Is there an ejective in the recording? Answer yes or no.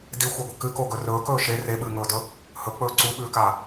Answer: no